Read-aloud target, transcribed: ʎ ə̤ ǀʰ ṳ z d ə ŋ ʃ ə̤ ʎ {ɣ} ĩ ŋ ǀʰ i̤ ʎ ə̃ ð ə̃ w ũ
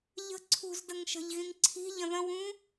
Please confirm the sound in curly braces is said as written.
yes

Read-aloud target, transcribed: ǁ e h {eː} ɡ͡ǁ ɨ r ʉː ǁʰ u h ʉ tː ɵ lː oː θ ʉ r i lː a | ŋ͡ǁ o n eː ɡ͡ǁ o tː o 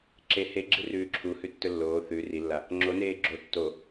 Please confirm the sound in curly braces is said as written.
no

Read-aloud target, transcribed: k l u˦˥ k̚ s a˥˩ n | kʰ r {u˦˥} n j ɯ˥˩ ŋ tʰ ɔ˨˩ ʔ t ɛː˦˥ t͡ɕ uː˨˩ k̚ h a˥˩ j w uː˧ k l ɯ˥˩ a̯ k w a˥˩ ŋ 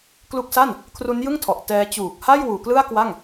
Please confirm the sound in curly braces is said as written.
yes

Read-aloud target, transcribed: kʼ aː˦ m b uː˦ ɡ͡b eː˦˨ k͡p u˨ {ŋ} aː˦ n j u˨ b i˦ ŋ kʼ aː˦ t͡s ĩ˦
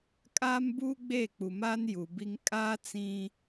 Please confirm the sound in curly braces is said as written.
no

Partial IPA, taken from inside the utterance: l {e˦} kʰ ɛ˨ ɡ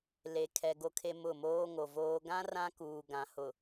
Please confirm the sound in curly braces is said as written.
no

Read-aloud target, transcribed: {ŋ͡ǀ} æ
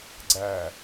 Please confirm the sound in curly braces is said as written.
no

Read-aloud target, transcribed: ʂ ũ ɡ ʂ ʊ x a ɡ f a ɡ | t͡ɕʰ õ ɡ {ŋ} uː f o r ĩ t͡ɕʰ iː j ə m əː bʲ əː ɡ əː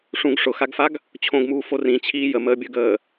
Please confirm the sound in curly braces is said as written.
no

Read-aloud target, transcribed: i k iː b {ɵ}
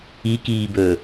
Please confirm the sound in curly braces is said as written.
yes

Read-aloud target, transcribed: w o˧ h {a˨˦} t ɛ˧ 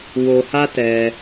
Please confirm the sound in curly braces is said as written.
no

